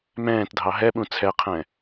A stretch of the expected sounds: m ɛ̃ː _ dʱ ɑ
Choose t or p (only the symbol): t